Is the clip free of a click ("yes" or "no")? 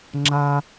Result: no